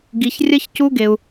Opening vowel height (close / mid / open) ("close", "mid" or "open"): close